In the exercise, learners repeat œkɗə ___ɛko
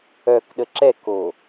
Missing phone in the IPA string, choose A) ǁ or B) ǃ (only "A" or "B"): A